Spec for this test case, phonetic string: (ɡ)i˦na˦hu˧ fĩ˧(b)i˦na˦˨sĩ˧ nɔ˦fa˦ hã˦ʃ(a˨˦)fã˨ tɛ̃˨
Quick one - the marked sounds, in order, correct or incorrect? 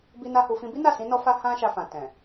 incorrect, correct, incorrect

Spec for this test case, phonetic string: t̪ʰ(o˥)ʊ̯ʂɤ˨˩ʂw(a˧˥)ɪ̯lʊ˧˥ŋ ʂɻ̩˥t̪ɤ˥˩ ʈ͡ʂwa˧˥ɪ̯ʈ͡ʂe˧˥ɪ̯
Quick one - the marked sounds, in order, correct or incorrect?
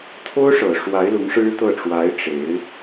correct, correct

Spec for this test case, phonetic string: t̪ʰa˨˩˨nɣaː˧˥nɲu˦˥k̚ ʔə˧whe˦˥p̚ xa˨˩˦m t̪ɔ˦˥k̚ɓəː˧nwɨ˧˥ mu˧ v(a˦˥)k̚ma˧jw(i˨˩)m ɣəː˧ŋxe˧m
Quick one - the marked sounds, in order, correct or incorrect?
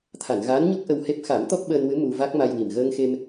correct, correct

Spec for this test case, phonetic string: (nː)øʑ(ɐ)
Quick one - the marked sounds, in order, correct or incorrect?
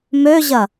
incorrect, correct

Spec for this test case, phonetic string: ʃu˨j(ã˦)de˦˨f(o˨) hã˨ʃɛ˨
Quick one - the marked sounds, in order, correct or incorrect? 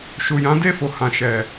incorrect, correct

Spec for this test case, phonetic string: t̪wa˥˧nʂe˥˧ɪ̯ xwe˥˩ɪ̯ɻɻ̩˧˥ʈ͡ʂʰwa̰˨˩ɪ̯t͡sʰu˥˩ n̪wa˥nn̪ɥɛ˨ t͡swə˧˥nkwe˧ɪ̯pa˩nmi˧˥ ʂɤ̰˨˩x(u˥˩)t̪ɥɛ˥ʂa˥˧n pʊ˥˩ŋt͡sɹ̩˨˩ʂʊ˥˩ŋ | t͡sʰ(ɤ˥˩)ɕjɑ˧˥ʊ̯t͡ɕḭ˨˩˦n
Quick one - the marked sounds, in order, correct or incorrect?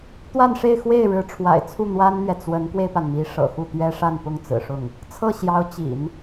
correct, correct

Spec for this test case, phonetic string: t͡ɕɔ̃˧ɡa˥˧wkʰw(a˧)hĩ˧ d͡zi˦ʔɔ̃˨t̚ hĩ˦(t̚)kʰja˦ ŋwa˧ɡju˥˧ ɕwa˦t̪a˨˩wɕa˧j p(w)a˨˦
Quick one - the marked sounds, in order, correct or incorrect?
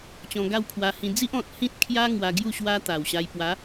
correct, correct, correct

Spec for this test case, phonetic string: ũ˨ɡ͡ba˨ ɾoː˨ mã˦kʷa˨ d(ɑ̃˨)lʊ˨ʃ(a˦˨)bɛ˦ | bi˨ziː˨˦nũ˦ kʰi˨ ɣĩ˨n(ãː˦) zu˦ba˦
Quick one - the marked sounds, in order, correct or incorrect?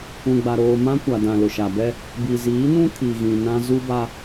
incorrect, incorrect, incorrect

